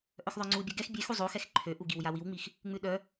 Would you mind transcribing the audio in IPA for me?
ʔ œ x ðˤ œ ŋ͡ǀ u bʲ œ ɡ ɛ x bʲ e x u zˤ o x ɛ x ǃʰ ø ʔ u ɡ i w j a w i w ŋ͡m i x | ŋ͡m ʉ ɗ œ

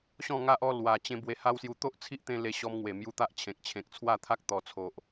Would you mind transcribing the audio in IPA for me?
ɕ ɔ̃˥˧ ŋ a˦ ʔ ɔ˥˧ l w a˨˩ t͡ɕ ẽ˧ b w e˧ h a˦ w s j u˧ t̪ o˦ ʔ t͡sʰ i˦ ʔ t̪ ẽ˧ l e˧ ɕ ɔ˧ m ŋ w e˨˩ m j u˧ t̪ a˦ ʔ t͡ɕʰ ẽ˨ k̚ t͡ɕʰ ẽ˨ k̚ t͡sʰ w a˥˧ t̪ʰ a˦ k̚ t̪ ɔ˨˩ t͡sʰ o˨ ʔ

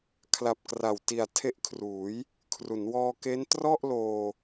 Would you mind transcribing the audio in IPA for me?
kʰ l a˨˩ p̚ k r a˨˩ w t i˨˩ a̯ tʰ e˦˥ ʔ kʰ r uː˩˦ j | kʰ r u˩˦ n w ɔː˧ k e˦˥ n t r ɔ˥˩ ʔ l oː˧

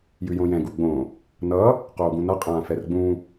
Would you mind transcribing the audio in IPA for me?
j ʉ j õ j ɛ̃ ɡ u ɡ͡b õ | n ʌ | q oː ɡ ũ n ʌ qʼ ãː f ɛ r ɡ͡b ũ

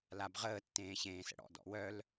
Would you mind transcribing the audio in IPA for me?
l a b ʁ əː tː ẽː ɕ ẽː s ə̰ ɽ ɔ̰ d ɔ̰ w œ l

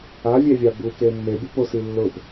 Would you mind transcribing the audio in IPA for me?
a vʲ ɛ vʲ a b u k e mː e bʲ ʊ p o s i lː ʊ p

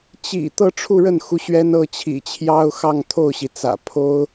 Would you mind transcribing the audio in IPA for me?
t͡ɕ ḭ˨˩ t̪ ɤ˥˧ ʈ͡ʂʰ u˥˧ ɻ ə˥˩ n x u˧˥ ɕ ɥ ɛ˥ n ɤ˥˩ t͡ɕʰ ḭ˨˩ t͡ɕʰ j ɑ˥ ʊ̯ x ɑ˥˧ ŋ t̪ʰ o˥˩ ʊ̯ ɕ i˩ t͡s ä̰˨˩ pʰ o˥ ʊ̯

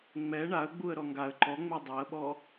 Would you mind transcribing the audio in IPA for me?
ŋ͡m ɛ ɳ a ə̯ ɡ͡b u ə̯ ɾ ɔ ŋ ɡ a ə̯ ǃ ɔ ŋ͡m e dˤ ɛ ə̯ ɓ ɔ

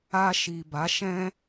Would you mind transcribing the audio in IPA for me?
a˧ ʃ i˨ b a˨˦ ʃ ɛ̃˦

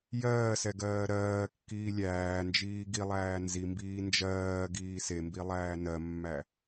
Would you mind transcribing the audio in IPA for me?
j ɜː s ɛ ɡ ɜː ɾ ɜː kː iː lʲ æː n d͡ʒ iː ɡ i lˠ æː n z i m b iː n d͡ʒ ɜː ɡ iː s e m b i lˠ æː n ɜ mː æ

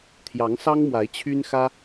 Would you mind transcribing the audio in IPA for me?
t̪ʰ j ɑ˧˥ ŋ s ɑ˥ ŋ m w a˧˥ ɪ̯ t͡ɕʰ y˥ n x ä˥

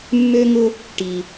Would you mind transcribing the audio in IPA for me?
mː ø˧ ŋ ʊ˧ | ʈ i˨

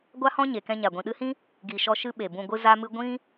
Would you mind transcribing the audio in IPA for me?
ɡʷ a˦ h ɔ̃˦ ɲ e˨ k ɛ̃˧ ɲ a˨ ɡʷ ĩ˨ ɗ ɨ˧ h ĩ˦ | ɡ i˨ ʃ ɔ˧ ʃ ɨ˦ ɓ e˨ b ũ˧ ɡʷ ɨ˦ z a˦ m ɨ˦ ɡʷ ĩ˦

